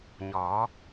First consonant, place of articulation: palatal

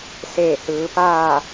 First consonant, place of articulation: alveolar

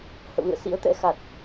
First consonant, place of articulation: glottal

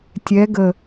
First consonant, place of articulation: alveolar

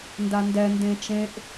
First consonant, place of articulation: alveolar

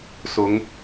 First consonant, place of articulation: alveolar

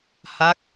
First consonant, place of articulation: glottal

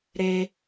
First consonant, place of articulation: alveolar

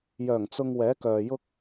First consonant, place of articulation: palatal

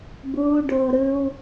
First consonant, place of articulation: labial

